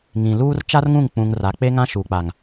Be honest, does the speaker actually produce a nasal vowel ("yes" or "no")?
yes